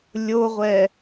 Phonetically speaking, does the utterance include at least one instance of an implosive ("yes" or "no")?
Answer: no